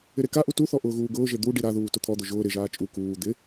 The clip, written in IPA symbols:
ɪ ɾ e k a ʔ u t u θ ɔ ʔ ʊː ɣ uː ɡ ʊː ʒ e d̪ u ɖ i ɾ a ð uː t ʊ t̪ʰ ɔ d̪ ʊ ʒ ʊː ɾ ɪ ʒ aː t͡ʃʼ u k uː d̪ ɪ

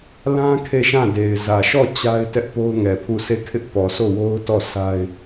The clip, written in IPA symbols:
l ã˦ kʰ e˦˨ ʃ ã˦˨ d e˨ ɪ̯ z ä˨ ʃ ɔ˦˨ t͡ɕ a˦ ɪ̯ t ɛ˦ ʔ p o˦ ʊ̯ ŋ ɛ˨ pʰ u˦˨ sʰ e˦˨ kʰ ɪ˦ ʔ p ɔ˨ s o˦˨ w o˦ ʊ̯ t ɔ˦˨ s a˦ ɪ̯

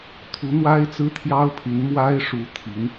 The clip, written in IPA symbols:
t̪ʰ u˧˥ n̪ w a˥ ɪ̯ t͡s ɹ̩˥ t̪ʰ j ɑ˥ ʊ̯ pʰ y˧˥ n m w a˥ ɪ̯ ʂ u˧˥ t̪ʰ i˧˥ n

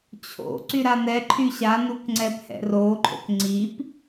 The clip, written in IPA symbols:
t͡ɕʰ o̰ ǀ y ɾ a n ɛ ǃʰ y ɕ a n u k ŋ͡ǀ ɛ p h ɛ̰ r o ǃʰ o̰ k ŋ͡ǀ i p

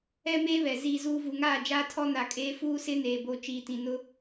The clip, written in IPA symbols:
ɛ˦ m eː˦ β ɛ˨ z iː˨ z uː˨ v u˨ ŋ aː˦˨ d͡ʒ aː˦ tʰ ɔ˦ n a˨ kʼ eː˦ f uː˦ s ɪ˦ n eː˨ b o˨ t͡ʃ iː˨ t ĩ˨ n ʊ˦

